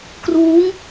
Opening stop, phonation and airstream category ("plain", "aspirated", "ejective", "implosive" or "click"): plain